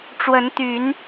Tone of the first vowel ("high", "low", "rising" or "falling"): rising